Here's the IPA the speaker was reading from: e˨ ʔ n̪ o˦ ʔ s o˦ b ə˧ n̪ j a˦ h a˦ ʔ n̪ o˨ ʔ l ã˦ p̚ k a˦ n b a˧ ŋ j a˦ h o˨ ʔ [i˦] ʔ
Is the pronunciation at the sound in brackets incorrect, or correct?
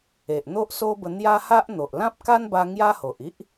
correct